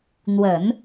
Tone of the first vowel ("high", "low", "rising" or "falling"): low